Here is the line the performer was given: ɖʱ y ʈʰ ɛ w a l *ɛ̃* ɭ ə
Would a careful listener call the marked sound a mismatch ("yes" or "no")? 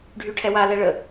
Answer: yes